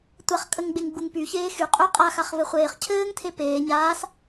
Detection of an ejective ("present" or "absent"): present